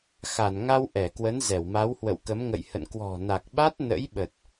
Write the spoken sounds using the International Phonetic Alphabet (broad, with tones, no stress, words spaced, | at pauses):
xa˧˩nŋa˧w ʔɛ˧˩kwə˨˦n zɛ˧˩wma˨˦whwə̰˧˨wkə˨˦m ŋə̰˧˨jhə̰˧˨n kwɔ̤˨˩na˨˩k̚ɓa˦˥t̚ nə̰˧˥jɓə˨˩t̚